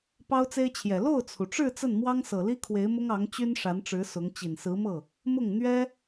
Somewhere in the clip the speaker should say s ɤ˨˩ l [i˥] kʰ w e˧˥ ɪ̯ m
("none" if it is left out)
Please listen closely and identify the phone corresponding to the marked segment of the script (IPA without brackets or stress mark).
i˥